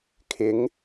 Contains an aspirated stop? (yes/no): yes